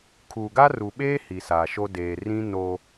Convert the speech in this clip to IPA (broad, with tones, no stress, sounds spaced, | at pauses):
kʰ u˨ ɡ a˦ r u˨ ɓ eː˦ h i˨ s a˨ ʃ o˦ d eː˨ r ĩ˦ n o˦